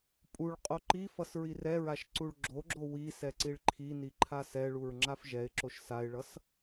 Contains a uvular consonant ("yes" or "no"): yes